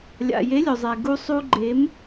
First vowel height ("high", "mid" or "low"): low